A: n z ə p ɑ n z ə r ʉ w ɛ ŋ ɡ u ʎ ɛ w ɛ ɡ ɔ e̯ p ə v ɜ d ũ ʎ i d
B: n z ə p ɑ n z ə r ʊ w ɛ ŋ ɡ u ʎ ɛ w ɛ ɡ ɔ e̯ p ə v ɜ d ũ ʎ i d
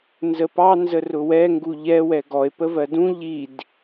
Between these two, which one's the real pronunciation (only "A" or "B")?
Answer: B